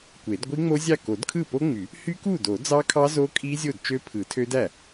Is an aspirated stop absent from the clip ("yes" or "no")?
no